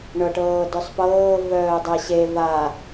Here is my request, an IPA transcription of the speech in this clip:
ɳ ɤ ʈ ɤː d œ sˤ p ɤː v œː dˤ ɛ ɕ e v a

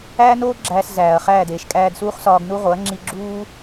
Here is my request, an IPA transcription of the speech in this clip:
æː˦ n oː˦ ɡ͡ǁ æː˧ s z æː˨ ɐ̯ χ æː˦˨ d eː˨ ʃ kʼ æː˧ d s uː˦ χ s ɒː˧ ɡ n u˦ ʁ o˨˦ ɐ̯ ŋ͡ǁ i˧ ɡ͡ǁ uː˦

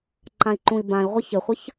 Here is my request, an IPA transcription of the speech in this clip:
ǃ ã i̯ ǃ ũ i̯ b ã i̯ ʁʷ ə ç ɘ χʷ ə ç

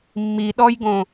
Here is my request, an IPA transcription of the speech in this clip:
mː i ɗ ɔ j ɡ õ

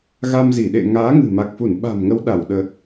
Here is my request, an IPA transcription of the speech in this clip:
ɣ a˧ m z i˧˩ ɗ ḛ˧˨ ŋ aː˨˦ ŋ ɨ̤˨˩ m a˨˩ k̚ f u˧˩ n ɓ a̤˨˩ m ŋ ə˨˦ w ɗ a˧˩ w ɗ ə˨˩ t̚

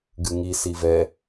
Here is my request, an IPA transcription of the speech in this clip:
ɡ ɨ ŋ i s i v ɛ

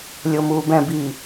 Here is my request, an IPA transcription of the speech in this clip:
lʲ o m uː b ɛ̃ b i

